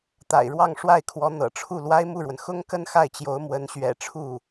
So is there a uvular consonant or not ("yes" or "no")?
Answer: no